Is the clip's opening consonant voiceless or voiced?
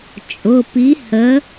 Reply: voiceless